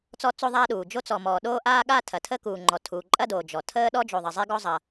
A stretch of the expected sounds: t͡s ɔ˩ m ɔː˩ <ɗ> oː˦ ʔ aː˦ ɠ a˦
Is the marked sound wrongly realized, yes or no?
no